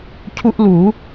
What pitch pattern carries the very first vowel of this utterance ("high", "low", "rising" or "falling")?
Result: high